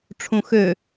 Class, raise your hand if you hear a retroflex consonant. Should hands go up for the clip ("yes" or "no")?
yes